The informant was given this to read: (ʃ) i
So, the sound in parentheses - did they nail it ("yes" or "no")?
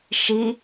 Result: yes